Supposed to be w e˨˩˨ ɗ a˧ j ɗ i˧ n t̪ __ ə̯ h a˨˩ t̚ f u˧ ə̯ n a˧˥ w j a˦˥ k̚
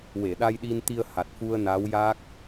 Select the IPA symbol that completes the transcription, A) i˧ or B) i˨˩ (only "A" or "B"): A